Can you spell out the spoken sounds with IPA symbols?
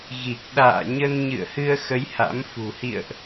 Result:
ɣ i˨˩ k̚ ɗ a̰ː˧˨ ɲ ə˧ n ɲ ɨ̰˧˨ ə̯ h ɨ˧ ə̯ x ə˨˦ j h a̰˧˥ m f ṳ˨˩ h ḭ˧˨ ə̯ ʔ

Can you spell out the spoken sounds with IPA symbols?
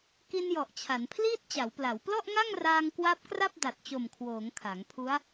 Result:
k i˧ n j ɔ˨˩ ʔ t͡ɕʰ a˩˦ n pʰ l iː˥˩ t̚ t͡ɕ a˩˦ w p l a˩˦ w p l ɔ˥˩ ʔ ŋ a˥˩ ŋ r aː˧ ŋ k w a˦˥ p̚ k r a˥˩ p̚ d a˨˩ t̚ t͡ɕ o˨˩ m kʰ w oː˩˦ ŋ kʰ a˩˦ ŋ pʰ u˦˥ a̯

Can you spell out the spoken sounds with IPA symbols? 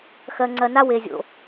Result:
x ɜ˨ ŋ͡ǀ ɜ˨ n a˦ w e˨ zʲ o̰˨

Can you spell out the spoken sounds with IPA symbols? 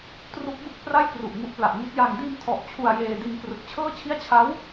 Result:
t r u˦˥ k̚ b ɯ˥˩ k̚ p r a˥˩ j k r u˨˩ ʔ ŋ u˦˥ ʔ p l a˨˩ ʔ ŋ i˦˥ t̚ j a˧ ŋ d iː˧ m tʰ ɔ˨˩ ʔ t͡ɕʰ u˧ a̯ j eː˧ d i˧ n k r ɯ˨˩ k̚ t͡ɕʰ ɤː˥˩ t͡ɕʰ i˥˩ a̯ t͡ɕʰ a˦˥ w

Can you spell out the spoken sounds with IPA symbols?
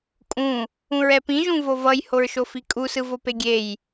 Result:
kʼ ũ | ũ ɹ ɛ p ĩ ʒ ũ v o v ʌ j h o ɹ ʃ o f i kʼ u s ɯ v o p e ɡʲ e j

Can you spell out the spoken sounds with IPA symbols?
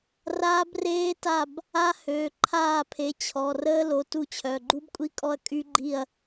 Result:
r aː˦˥ b r eː˦˥ t a˦˨ b | a˦˥ h øː˩˧˩ ǃʰ aː˦˨ pʰ e˩˧˩ t͡ɕʰ ɔ˩˧˩ r əː˦˥ l o˩˧˩ t u˦˨ t͡ɕʰ œ˩˧˩ ɡ͡ǃ u˦˥ b kʷʼ i˦˥ kʼ ɔ˦˨ ɐ̯ kʼ y˦˥ ɡ͡ǃ i˦˨ ɐ̯

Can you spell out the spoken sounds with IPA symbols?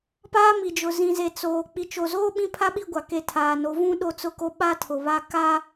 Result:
p aː˦ m i˨ d͡ʒ ʊ˨ z ĩ˨ z e˨ t͡s oː˨ k͡p i˨ t͡ʃ o˨ z oː˦ ɓ ĩ˦ pʰ a˦ ɓ i˦˨ ɡʷ a˨ k e˨ tʰ aː˨ n o˨˦ v ũ˦ ɗ o˦ t͡s ʊ˦ k o˦ ɓ a˦ tʰ ʊ˨ β a˦ k a˦

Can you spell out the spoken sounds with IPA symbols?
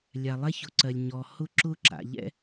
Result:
lʲ a˩ lˠ ɛ˥ ç ʊ˩ ǀ ɜ˩ lʲ ɲ ɔ˩ h ʊ˥ ǁ ʊ˥ ǁ a̰˩ ʎ ɛ̰˥

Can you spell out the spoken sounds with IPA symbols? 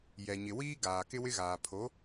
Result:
j ɛ˨ ɲ ɪ˨ w iː˦ ɡ aː˨ k ɪ˦ w ɪ˦ ɣ aː˨ pʰ o˨˦

